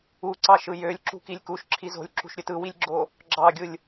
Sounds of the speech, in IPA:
u ǀ ɑ ʃ ɯ j ø lʲ ǁ ṳ k i lʲ k u ʃ ǁʰ i z o̤ lʲ ǁ ṳ ʃ ɾʲ ø t ɯ w i lʲ ɡ͡ǁ o | ɡ͡ǁ ɑ ɡʲ ɯ lʲ

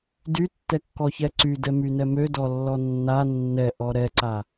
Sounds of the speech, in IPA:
d y tː ɛ kː ɔ ç ɛ ǀ y d ɛ m y n ɛ m ø d ɔ lː ɔ nː a nː ɛ ʔ ɔ ɾ ɛ ǀ a

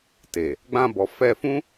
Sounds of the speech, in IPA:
t e˨ | ɡ͡b ã˧ b ɔ˨ f ɛ˧ f ũ˦

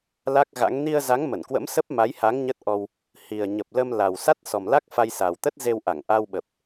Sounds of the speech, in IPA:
l a˦˥ k̚ ɣ a̰˧˥ ŋ n i˧ ə̯ z a˨˦ ŋ m ə˧˩ n k w ə̰˧˥ m s ə˦˥ p̚ m a˨˦ j h a˨˦ ŋ ɲ ə˦˥ t̚ ʔ ɔ˧ w | h i˨˩ ə̯ ɲ ə˨˩ p̚ l ə˧ m l a˨˩ w s a˦˥ t̚ s ɔ˨˩ m l a˦˥ k̚ f a˧ j s a˨˩ w t̪ ə˦˥ t̚ z e˧ w ʔ a˧˩ ŋ ʔ a˧ w ɓ ə˨˩ p̚

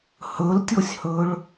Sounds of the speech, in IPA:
h ɵ l tʲ o sʲ h ɵ ɭ

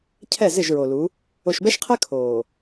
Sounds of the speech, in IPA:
cʰ ɛ˦˨ z ɪ˦˨ ʒ ɹ o˨ l u˨˦ | o˨ ʃ b ɛ˦ ʃ qʰ ɛ˦ kʰ oː˨

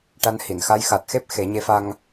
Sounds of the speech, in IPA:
ʈ a˧ n h i˨˩˨ n x a˧˥ j x a˨˩ t̚ x e˦˥ p̚ x e˨˩˦ ɲ e˧˥ f a˧ ŋ

